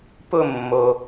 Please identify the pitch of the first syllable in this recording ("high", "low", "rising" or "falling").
falling